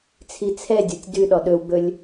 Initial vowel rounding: unrounded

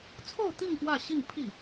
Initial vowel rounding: rounded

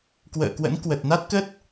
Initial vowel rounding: unrounded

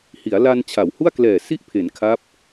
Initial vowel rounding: unrounded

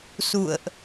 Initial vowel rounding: rounded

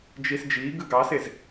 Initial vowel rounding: unrounded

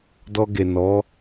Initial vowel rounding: rounded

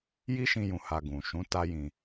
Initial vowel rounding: unrounded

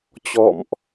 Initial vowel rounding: rounded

